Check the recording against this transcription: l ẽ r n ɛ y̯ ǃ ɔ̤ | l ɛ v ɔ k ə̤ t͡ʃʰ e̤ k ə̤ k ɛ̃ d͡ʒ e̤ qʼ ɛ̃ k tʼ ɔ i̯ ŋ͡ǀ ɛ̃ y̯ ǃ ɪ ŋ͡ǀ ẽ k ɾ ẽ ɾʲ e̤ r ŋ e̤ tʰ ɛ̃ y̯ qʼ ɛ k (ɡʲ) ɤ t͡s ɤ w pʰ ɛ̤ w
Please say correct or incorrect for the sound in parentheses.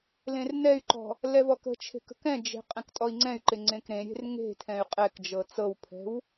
incorrect